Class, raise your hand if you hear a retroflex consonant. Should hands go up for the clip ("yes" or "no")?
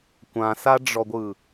yes